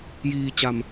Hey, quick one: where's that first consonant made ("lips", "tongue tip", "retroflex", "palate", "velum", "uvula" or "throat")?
palate